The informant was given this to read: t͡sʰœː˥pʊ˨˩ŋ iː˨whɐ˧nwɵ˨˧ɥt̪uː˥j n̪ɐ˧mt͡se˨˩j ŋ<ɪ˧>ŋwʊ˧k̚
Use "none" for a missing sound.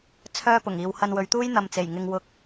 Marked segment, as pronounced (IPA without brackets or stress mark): ɪ˧